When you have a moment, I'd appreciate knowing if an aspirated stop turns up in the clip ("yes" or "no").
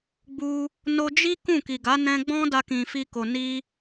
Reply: no